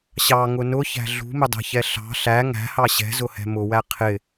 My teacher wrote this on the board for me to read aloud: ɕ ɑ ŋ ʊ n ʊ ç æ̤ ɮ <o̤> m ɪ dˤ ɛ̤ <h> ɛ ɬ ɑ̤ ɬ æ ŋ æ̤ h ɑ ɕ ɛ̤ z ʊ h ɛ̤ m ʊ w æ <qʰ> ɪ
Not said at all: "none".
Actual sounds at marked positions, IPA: ṳ, ç, qʰ

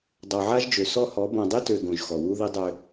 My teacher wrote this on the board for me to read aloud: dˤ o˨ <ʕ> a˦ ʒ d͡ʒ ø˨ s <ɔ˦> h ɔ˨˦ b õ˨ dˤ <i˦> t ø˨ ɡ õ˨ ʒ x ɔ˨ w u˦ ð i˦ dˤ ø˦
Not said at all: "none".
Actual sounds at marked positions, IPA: ʕ, ɔ˦, i˦

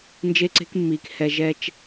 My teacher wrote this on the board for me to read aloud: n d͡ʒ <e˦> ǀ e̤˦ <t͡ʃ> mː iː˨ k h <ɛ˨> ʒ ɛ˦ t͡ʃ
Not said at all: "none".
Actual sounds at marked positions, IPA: e˦, k, ɛ˨

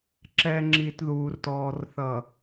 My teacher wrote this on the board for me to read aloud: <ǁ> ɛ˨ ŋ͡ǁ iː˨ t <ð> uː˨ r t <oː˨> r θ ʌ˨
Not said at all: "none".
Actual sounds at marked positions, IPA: ǁ, ð, ɔː˨

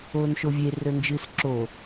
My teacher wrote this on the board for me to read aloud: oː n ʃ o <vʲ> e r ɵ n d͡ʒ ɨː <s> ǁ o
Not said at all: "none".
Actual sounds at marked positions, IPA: vʲ, s

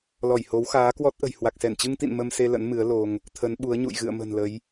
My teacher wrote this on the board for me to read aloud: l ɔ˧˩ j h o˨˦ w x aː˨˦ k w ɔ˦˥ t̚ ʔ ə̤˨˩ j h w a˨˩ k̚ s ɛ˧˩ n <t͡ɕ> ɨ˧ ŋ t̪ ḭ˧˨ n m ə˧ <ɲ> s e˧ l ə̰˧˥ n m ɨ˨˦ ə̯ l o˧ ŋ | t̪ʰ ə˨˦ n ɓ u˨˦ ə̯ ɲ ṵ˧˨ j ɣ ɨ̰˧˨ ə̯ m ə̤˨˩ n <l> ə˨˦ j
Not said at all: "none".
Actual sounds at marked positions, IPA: t͡ɕ, m, l

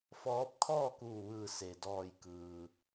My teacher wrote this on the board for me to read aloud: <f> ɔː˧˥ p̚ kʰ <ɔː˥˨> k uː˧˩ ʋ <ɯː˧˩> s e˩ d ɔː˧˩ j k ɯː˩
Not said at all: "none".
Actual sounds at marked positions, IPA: f, ɔː˥˨, ɯː˧˩

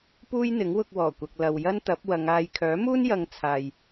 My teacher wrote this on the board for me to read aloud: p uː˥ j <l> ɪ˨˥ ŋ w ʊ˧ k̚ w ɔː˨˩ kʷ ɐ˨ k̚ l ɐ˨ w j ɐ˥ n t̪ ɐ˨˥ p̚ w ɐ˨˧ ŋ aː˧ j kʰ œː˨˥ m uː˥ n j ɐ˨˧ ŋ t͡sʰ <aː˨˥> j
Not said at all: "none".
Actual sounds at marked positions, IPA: n̪, aː˨

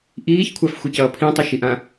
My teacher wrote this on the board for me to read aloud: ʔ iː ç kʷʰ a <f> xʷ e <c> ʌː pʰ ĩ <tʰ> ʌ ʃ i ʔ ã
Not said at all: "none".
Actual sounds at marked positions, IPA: f, c, tˤ

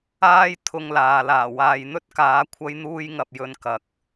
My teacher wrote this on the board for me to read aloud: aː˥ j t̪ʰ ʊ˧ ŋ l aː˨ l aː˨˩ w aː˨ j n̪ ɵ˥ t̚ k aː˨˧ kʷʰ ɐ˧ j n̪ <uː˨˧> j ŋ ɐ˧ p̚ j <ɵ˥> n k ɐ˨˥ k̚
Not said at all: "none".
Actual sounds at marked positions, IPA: uː˧, ɵ˧

